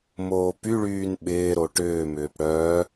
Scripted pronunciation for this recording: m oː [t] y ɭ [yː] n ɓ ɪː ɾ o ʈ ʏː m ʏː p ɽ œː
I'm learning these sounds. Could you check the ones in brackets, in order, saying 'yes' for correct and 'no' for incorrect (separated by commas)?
no, yes